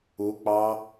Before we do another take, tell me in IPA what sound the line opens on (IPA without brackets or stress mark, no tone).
u